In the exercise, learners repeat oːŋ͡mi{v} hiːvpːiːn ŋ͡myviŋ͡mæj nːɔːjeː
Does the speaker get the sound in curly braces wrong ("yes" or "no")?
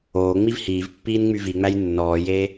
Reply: no